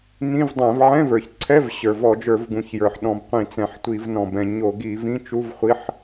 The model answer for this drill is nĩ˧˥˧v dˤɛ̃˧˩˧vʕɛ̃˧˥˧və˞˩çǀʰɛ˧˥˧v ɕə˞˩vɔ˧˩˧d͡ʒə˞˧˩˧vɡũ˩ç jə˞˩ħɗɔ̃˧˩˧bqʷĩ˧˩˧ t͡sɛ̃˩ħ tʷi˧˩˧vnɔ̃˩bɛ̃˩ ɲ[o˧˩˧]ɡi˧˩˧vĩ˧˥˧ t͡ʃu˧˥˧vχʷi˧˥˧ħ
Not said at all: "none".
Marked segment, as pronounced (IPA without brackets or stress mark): o˧˩˧